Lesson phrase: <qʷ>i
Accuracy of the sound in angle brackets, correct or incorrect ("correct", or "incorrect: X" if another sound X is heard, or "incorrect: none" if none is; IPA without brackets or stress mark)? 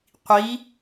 correct